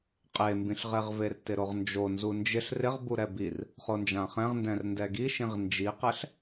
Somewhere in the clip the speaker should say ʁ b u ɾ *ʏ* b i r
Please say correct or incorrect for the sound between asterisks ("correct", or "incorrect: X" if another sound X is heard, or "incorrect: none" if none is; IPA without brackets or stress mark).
incorrect: ɛ